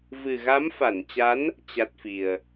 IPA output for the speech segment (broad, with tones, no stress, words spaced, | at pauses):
vɨ˨˩ɣa˨˦mfa˧˩nt͡ɕa˨˦n | t͡ɕa˦˥t̚fi˨˩ə̯